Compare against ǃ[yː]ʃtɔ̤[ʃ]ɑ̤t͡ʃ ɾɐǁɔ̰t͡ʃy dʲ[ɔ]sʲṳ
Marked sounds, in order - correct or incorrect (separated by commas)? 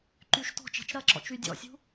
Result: correct, incorrect, incorrect